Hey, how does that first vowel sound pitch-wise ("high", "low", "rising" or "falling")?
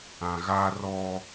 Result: low